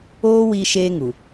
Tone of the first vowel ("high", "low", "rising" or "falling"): high